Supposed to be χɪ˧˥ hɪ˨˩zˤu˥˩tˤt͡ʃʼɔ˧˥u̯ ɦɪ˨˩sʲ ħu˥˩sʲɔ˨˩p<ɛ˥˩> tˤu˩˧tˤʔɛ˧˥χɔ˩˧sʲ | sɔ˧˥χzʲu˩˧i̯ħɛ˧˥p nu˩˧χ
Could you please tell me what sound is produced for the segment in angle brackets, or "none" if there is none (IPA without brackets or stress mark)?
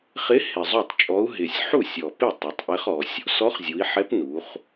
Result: ɪ˥˩